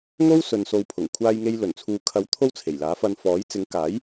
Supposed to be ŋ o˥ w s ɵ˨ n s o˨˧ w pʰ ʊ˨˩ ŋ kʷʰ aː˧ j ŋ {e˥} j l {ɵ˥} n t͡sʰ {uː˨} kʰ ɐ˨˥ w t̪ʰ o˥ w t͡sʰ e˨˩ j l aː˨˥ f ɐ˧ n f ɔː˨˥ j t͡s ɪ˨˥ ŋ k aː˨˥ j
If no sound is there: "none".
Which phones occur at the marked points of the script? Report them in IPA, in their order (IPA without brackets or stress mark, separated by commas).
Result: e˧, ɵ˨˩, uː˨